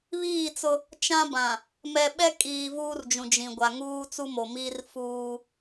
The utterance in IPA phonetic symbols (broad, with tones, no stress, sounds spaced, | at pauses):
β iː˦˨ t͡s ʊ˦ | t͡ʃ ã˦ b ã˨ | m ɛ˨ ɓ ɛ˦ kʼ iː˨ v uː˦ r d͡ʒ ũ˨ d͡ʒ ĩ˨ ɡʷ a˨ ŋ uː˦ t͡s u˦ m o˨ m i˦ r f uː˦